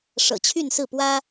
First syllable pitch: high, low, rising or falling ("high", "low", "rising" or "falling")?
low